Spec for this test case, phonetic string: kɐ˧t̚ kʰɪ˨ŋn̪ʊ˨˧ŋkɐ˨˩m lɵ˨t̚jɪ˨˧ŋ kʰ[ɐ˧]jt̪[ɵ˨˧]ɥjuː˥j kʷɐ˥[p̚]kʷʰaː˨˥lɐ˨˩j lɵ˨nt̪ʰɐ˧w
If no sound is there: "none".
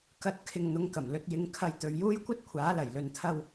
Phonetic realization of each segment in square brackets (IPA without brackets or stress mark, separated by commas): ɐ˧, ɵ˨˧, t̚